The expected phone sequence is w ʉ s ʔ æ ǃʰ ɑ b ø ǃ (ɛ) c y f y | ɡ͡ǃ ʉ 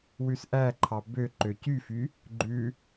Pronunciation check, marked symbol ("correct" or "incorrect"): incorrect